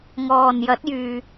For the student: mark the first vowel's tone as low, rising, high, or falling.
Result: low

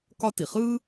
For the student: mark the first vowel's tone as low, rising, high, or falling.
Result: high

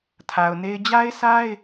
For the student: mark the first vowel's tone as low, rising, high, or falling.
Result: low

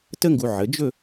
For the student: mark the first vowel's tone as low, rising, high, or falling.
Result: high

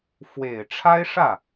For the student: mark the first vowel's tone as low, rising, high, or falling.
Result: low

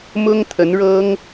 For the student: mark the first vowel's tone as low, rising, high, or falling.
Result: high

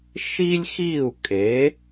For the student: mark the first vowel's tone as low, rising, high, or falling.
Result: high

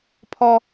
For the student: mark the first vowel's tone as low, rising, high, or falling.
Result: high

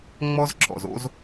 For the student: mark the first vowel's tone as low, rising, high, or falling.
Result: high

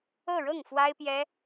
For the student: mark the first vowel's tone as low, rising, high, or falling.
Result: falling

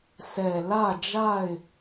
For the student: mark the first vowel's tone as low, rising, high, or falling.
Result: low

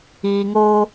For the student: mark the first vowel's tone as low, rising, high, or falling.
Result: low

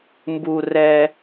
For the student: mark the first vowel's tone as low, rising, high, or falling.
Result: low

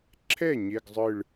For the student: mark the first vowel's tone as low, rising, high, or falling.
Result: falling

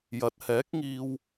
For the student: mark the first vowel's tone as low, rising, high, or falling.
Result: rising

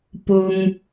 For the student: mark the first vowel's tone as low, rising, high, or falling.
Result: high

